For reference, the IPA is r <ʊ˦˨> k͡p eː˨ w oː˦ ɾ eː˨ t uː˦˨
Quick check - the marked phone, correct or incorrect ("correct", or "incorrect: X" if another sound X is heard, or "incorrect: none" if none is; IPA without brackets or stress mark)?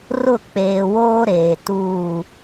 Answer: correct